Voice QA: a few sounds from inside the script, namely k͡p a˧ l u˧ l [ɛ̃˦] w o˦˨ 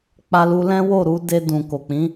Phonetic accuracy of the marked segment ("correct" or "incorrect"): correct